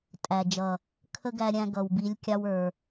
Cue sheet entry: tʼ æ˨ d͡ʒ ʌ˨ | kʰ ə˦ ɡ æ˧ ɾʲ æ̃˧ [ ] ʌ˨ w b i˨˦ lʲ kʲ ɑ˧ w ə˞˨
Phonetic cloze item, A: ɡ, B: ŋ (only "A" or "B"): A